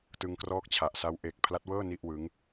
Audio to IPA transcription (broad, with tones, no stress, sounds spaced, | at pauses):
t ɯ˧ ŋ k r ɔː˦˥ k̚ t͡ɕʰ a˨˩ ʔ s a˦˥ w ʔ e˨˩ k̚ pʰ l a˦˥ t̚ w ɤː˥˩ n i˥˩ ʔ w ɯ˦˥ ŋ